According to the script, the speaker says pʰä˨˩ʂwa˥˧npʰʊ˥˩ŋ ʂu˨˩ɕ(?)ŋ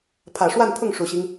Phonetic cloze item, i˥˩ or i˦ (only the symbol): i˦